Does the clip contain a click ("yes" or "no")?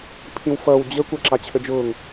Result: yes